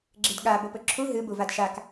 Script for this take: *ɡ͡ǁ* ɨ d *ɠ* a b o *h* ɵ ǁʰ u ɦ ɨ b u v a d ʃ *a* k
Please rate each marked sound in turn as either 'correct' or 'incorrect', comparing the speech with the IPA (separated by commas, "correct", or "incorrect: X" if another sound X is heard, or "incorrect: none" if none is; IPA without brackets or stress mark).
correct, correct, incorrect: p, correct